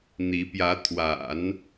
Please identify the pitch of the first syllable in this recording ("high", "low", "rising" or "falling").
rising